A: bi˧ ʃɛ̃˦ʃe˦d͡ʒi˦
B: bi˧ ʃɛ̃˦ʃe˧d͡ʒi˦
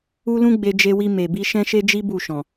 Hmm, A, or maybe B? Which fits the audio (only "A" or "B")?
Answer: A